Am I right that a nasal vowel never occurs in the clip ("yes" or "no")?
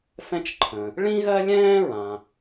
no